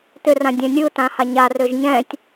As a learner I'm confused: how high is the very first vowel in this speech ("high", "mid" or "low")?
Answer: high